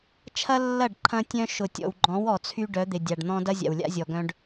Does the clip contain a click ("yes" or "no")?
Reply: yes